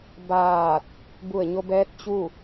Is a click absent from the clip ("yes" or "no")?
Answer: yes